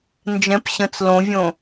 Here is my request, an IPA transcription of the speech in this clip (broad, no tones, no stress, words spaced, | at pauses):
nd͡ʒɛ̃p ɕə̃t͡s lõvʲõ